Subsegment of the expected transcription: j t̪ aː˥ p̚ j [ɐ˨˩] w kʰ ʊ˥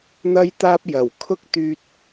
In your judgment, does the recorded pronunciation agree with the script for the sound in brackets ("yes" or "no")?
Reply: yes